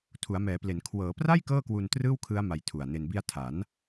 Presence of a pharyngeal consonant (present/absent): absent